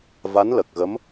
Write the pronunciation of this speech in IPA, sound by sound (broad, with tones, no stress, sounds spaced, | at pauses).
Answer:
v a˧˥ n l ə˨˩ k̚ ɣ ə˧˥ m